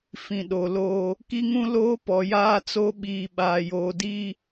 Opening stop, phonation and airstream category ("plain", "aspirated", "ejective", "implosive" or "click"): implosive